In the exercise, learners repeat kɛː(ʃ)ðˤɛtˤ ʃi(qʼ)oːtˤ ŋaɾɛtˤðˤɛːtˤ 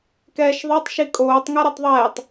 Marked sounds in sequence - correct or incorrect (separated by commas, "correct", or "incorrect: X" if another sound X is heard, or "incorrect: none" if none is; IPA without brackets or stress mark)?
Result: correct, incorrect: kʼ